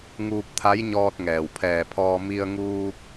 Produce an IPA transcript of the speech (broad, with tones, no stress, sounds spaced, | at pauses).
ŋ uː˧ p̚ t̪ʰ a˧˥ j ɲ ɔː˧ t̚ ŋ ɛː˩ w pʰ ɛː˧˩ pʰ ɔː˧ m i˧ ə̯ ŋ uː˧ p̚